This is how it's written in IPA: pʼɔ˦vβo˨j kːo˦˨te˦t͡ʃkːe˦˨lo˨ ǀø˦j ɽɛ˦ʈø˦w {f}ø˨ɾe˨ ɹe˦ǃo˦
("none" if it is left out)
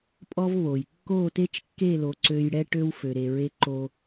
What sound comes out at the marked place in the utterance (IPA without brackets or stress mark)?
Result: f